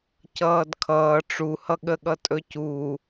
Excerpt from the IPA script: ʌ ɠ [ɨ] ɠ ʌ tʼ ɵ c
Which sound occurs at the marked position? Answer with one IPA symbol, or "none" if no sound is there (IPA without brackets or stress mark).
ə